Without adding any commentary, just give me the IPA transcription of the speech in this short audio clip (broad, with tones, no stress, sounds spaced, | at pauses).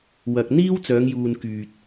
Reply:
w ɐ˨ k̚ n̪ iː˥ w t͡s œː˨˧ ŋ j uː˨ n k yː˨ t̚